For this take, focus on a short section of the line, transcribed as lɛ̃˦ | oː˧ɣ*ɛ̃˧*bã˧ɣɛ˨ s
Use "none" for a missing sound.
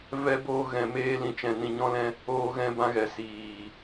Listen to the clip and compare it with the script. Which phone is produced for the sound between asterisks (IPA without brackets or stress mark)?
ɛ̃˧